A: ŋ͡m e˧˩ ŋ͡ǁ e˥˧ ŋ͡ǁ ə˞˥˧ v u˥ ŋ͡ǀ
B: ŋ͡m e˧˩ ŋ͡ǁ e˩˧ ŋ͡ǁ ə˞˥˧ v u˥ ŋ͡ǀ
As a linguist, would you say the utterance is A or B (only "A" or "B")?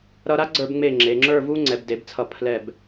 B